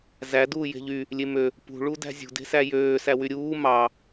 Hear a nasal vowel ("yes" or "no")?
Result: no